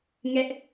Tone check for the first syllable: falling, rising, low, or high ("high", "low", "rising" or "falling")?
high